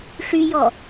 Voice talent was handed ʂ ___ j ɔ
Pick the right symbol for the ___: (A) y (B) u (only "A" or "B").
A